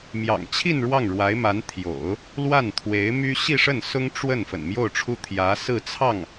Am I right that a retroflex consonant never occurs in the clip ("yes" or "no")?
no